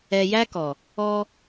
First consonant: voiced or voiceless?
voiced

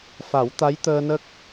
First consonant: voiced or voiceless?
voiceless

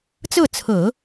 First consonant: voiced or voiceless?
voiceless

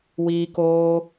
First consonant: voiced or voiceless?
voiced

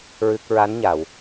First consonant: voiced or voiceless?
voiced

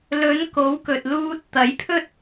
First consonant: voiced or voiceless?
voiced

